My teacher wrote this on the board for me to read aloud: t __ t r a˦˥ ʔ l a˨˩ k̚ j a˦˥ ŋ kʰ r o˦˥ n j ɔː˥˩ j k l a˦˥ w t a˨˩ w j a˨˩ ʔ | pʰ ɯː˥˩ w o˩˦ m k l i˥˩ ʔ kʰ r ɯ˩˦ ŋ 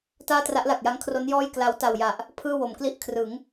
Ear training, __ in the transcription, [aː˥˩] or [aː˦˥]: aː˥˩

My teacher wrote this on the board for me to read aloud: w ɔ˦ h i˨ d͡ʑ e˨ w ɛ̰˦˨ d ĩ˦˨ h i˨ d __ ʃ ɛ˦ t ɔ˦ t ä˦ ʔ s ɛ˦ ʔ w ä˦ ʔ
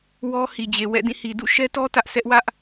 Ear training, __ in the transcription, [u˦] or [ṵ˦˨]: ṵ˦˨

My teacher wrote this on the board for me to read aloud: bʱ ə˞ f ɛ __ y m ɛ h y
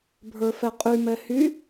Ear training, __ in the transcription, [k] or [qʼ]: qʼ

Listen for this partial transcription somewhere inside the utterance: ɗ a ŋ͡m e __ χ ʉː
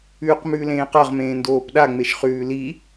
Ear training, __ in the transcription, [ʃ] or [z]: ʃ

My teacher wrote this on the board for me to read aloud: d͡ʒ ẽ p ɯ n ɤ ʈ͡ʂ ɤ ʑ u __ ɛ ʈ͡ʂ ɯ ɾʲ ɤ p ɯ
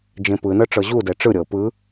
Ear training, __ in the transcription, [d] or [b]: d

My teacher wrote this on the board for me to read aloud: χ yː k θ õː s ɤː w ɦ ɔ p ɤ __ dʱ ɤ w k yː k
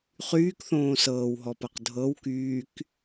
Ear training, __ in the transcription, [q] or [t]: q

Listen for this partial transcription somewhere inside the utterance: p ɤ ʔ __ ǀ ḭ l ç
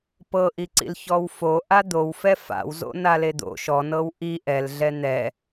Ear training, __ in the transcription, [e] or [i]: i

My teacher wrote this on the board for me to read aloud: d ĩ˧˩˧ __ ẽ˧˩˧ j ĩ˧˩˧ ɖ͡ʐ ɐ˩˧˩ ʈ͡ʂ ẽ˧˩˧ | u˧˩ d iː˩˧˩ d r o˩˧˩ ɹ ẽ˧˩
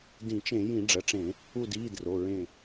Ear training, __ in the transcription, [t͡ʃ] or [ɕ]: t͡ʃ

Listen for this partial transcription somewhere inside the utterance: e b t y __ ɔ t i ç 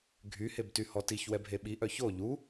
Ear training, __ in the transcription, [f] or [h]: h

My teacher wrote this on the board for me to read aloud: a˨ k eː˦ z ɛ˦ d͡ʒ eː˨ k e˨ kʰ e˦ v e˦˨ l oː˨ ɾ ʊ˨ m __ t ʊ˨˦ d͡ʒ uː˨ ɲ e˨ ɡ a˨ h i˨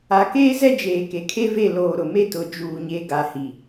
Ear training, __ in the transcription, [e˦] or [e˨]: e˦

